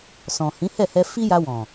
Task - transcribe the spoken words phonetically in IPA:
s ɔ̃˨ h ĩ˨˦ h ɛ˦˨ h ɛ˧ f i˦ j a˧ w ɔ̃˨

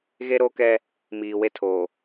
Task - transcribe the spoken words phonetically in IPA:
ɣ e˦ ɾ o˦ k ɛ˦ | m iː˨ w e˦ tʰ oː˨

